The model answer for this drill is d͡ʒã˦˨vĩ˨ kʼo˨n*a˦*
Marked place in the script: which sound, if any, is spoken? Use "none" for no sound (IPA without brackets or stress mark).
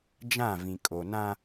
ã˦